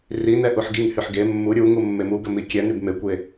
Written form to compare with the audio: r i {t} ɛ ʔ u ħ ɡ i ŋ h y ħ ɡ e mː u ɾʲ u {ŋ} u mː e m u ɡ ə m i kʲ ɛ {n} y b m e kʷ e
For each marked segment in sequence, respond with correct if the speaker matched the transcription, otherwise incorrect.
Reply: incorrect, correct, correct

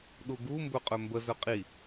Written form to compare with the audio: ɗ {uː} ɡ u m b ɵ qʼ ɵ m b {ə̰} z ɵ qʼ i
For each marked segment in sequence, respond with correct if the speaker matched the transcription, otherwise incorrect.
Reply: incorrect, incorrect

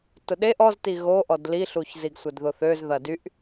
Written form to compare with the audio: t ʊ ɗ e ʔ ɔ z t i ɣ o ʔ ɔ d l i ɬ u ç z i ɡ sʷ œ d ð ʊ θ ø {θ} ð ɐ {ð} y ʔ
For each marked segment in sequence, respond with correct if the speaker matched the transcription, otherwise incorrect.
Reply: incorrect, incorrect

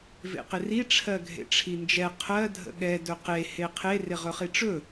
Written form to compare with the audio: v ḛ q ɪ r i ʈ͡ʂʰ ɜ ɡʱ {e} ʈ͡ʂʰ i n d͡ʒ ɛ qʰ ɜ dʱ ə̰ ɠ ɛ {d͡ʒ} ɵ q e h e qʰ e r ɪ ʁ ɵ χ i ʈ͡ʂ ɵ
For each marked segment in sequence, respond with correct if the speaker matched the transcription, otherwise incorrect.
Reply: incorrect, incorrect

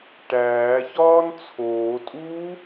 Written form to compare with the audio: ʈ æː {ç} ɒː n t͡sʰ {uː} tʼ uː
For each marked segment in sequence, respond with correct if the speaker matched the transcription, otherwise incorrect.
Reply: correct, incorrect

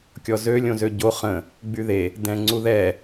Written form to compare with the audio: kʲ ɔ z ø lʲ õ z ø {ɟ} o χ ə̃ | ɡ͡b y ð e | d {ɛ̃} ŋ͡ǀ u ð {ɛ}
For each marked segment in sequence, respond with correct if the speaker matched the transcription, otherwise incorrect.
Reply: correct, correct, correct

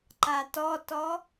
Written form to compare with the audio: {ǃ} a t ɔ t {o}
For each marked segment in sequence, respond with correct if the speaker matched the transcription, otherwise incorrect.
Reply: correct, incorrect

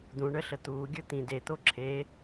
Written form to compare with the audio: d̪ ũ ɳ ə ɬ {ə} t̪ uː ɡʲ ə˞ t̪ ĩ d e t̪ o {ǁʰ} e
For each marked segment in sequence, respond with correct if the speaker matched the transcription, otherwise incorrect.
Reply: correct, correct

